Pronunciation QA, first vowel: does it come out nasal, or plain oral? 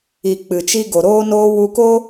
oral